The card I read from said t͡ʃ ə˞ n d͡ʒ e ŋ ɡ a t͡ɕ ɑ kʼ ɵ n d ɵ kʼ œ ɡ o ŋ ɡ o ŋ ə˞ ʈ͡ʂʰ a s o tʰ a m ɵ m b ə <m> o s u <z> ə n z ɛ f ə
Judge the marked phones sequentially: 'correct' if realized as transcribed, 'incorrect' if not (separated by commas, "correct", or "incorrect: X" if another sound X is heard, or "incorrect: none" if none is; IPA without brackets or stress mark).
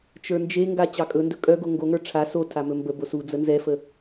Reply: incorrect: b, incorrect: d͡z